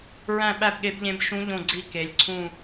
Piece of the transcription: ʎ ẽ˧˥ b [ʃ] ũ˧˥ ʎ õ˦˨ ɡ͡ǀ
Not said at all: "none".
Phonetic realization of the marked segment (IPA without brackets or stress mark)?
ʃ